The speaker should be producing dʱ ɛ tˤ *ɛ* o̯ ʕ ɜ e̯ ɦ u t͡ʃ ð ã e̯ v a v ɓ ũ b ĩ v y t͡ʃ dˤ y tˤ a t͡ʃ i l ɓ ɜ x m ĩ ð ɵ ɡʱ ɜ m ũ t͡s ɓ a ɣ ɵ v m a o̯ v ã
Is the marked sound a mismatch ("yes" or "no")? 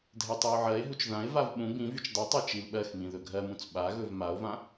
no